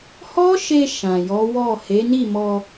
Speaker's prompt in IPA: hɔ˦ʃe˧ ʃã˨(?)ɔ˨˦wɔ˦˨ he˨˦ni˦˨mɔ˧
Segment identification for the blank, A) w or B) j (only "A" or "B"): B